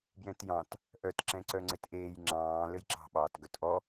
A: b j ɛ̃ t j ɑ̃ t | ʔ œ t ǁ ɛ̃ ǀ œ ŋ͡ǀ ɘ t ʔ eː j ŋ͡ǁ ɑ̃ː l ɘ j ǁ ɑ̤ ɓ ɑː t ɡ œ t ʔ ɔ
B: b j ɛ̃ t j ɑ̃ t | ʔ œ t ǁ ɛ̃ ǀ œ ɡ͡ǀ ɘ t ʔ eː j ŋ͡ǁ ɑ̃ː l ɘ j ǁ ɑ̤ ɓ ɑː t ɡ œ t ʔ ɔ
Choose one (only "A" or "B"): A